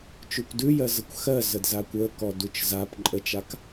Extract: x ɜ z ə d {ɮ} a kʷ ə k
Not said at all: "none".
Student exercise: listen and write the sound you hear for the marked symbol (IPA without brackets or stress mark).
z